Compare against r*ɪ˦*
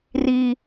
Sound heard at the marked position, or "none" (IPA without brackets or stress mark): i˦